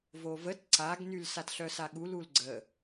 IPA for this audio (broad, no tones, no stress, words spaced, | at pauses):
vovət ǀaɡnyl satɬœsaɠu lulɡ͡ǀə